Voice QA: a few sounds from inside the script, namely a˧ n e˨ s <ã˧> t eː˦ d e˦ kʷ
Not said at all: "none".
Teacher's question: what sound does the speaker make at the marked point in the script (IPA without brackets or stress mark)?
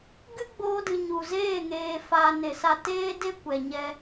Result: a˧